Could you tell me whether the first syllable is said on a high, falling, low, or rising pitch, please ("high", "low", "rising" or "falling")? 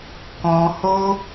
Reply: low